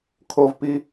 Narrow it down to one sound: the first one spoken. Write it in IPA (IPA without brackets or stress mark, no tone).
kʰ